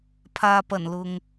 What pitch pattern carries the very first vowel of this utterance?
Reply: low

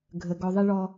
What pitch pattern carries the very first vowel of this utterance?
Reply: low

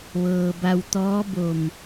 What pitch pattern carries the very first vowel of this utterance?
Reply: low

